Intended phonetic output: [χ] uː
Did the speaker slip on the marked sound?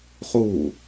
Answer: no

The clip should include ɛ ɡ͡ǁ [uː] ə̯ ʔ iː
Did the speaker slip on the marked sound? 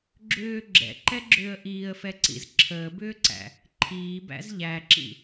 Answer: yes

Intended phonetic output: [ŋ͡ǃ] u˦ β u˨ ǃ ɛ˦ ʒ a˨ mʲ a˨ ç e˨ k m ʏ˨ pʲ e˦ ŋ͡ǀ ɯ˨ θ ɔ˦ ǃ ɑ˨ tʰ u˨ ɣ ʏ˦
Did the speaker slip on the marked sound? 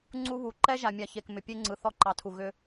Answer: yes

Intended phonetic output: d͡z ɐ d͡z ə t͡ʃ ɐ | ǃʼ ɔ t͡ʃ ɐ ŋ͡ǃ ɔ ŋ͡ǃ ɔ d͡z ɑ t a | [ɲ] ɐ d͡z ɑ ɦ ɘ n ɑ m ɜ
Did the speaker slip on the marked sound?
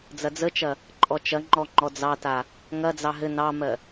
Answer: yes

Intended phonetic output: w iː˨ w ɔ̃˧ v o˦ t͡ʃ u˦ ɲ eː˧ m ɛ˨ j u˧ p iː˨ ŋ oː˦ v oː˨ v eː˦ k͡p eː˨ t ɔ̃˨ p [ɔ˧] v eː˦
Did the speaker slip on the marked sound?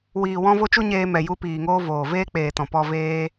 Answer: no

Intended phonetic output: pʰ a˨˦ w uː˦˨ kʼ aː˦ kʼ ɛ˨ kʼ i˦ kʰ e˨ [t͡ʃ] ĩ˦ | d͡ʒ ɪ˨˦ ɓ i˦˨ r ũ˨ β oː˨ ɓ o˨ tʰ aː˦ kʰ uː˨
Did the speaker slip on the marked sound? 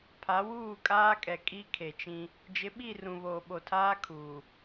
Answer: no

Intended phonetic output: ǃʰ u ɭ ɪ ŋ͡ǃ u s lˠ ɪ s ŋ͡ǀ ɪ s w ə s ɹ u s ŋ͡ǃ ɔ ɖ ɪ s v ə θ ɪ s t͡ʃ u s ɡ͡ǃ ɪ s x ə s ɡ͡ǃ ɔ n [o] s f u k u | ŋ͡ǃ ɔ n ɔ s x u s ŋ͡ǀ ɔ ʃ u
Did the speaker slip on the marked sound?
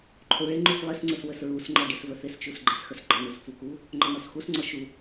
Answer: yes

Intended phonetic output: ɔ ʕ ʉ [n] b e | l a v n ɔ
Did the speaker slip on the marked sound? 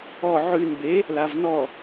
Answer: no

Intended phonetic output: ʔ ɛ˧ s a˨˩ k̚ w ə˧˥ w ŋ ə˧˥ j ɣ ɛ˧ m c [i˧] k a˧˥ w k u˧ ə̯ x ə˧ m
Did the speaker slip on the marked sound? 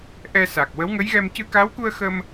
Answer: yes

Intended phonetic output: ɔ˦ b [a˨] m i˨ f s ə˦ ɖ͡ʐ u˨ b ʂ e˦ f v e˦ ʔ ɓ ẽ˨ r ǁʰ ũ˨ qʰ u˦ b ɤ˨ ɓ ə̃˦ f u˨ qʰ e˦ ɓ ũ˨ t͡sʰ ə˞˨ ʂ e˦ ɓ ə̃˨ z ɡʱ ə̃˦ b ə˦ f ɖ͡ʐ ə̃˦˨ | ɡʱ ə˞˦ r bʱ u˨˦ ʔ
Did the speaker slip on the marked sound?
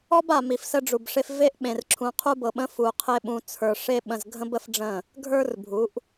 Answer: no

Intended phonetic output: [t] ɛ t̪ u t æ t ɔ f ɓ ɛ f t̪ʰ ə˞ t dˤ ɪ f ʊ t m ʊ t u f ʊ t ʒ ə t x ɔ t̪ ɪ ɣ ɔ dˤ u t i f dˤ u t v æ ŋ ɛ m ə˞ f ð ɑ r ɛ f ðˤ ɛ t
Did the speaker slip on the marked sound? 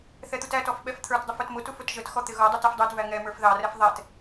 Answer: yes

